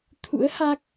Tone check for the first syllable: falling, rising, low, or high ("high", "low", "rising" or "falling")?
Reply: rising